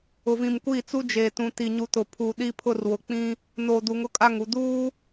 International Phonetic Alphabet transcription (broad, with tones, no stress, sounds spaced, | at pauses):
ʊ˨ v ĩ˨ m kʷ iː˦˨ t͡s u˦ d͡ʒ eː˨ t ũ˨ t i˨ ɲ u˨ t ʊ˨ pʰ uː˨ ɗ i˦ pʰ ʊ˦˨ r w ʊ˨ k͡p ĩ˦ | n o˨ d u˨ ŋ ʊ˦ kʼ a˦˨ ŋ u˨ d uː˦